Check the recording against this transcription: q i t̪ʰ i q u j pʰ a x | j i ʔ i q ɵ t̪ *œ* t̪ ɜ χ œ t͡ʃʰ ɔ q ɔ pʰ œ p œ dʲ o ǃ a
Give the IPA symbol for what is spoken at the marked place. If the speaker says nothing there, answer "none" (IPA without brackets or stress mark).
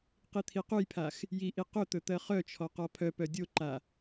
ɵ